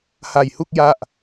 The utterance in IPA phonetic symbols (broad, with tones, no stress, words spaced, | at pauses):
ha˧jhu˥˩k̚ ja˥˩ʔ